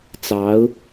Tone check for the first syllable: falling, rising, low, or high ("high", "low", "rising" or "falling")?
rising